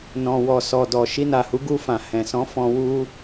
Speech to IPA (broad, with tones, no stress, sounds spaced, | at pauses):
n ɔ̃˨ w ɔ˨ s ɔ˨ d ɔ˨ ʃ i˧ n a˨ h u˨˦ ɡ u˧ f ã˨ h ɛ̃˨ s ɔ̃˨˦ f ɔ̃˧ w u˦